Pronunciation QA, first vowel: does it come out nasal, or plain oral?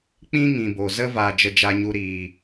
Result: nasal